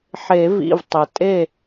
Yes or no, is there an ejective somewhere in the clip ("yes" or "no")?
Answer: yes